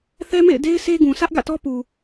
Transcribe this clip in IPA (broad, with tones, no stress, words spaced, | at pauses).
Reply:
θɛ˦mḛ˦˨ɪ̯ de˦ɪ̯ sʰe˦ɡũ˨ sʰä˦ʔɡä̰˦˨tɔ˦ pu˨